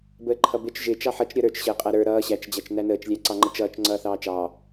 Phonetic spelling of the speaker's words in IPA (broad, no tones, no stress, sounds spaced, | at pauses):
b əː ǃʰ ʌ b ɪ t͡ʃ ʒ ɪ t͡ʃ ɑ ħ ʌ t͡ʃ ɾʲ ʌ ɾ ə˞ t͡ʃ ɕ əː qʼ æ ɾ ə˞ ɾ ʌː ɕ æ t͡ʃ d͡ʑ æ t͡ʃ n æ n əː t͡ʃ lʲ æ ǀ ɑ ŋ͡ǃ ʌ t͡ʃ ʌː t͡ʃ ŋ͡ǀ ʌː θ ɑː t͡ʃ ɑː